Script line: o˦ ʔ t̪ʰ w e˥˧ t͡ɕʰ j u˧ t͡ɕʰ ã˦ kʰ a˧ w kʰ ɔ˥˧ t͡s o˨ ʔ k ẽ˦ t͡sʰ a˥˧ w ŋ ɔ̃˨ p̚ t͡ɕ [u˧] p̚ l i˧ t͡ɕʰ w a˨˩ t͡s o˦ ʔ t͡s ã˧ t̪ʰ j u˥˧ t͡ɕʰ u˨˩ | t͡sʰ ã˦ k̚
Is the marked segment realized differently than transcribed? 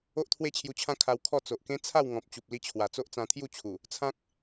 yes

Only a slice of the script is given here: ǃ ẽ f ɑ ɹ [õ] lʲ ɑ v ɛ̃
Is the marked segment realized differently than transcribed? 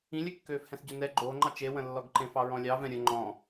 yes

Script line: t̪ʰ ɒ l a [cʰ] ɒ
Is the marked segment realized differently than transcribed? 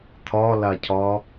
no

